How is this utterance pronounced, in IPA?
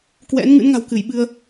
k w ɛ̰˧˥ n ŋ ɨ̰˧˥ n ŋ a̤˨˩ w k ɨ˧˩ j ɓ ɨ˧ ə̯

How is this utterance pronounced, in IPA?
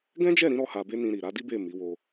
ɡ ɛ̃˦ d͡ʒ ɛ˦˨ ɾ ĩ˨˦ ɾ ɔ˦ h a˧ b e˦ n ĩ˧ ɾ i˨ ɾ a˨˦ d i˦ b e˦˨ m i˨˦ w o˧

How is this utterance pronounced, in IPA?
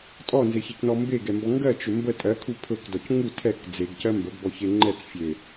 tʼ ɔ n z e ç ɛ c n ɔ m b e ɡ ɛ m b ɔ ŋ ɡ ɜ t͡ʃ ɵ m b ə tʼ ɜ kʰ u pʰ ɵ k d ɔ c ŋ u tʰ ɛ k d͡z e ɡ c ɜ m b ə ɡ b ɔ ç e ŋ͡ǃ ɛ t͡s fʲ e

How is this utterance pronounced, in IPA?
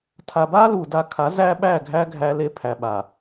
tʰ a˨ b a˦ l u˨ d a˦ kʰ a˨˦ z æ˦ ɓ æ˦˨ ɡʱ æ˦ ɡʱ æ˦ l e˦ pʰ æ˨ ɓ a˨

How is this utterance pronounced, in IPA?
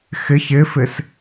x ɪ ç ɪ f ɪ s

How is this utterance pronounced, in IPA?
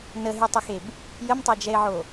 n ə ɦ y tˤ ɛ x e b | j ə m tˤ œ d͡ʒ ɛ ɪ̯ ʕ o

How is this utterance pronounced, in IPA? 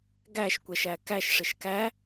ɡ æ ʃ kʷ ɛ ʃ æ k æ ʃ ʂ ɪ ʃ k æ

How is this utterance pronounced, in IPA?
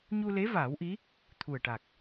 ɲ u˧ l e˧˥ v aː˨˩˦ w ʔ i˧˥ | t̪ʰ u˨˩ ə̯ ʈ a˨˩ k̚

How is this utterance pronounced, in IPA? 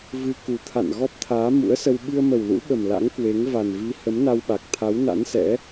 v ɨ˧ k u˨˩ t̪ʰ a̰˧˨ n ɣ ɔ˦˥ p̚ t̪ʰ aː˨˦ m ṵ˧˥ ə̯ s ə˧ w ɓ ɨ˧ ə̯ m ə˨˩ w l ṵ˧˥ ɓ ə˨˩ m l a̰˧˥ ŋ k w e˨˦ ŋ v a˨˩ n v i˨˦ h ə˨˦ m n a˧ w ɓ a˨˩ k̚ t̪ʰ a˨˦ w n a̰˧˥ n s ɛ̰˧˥

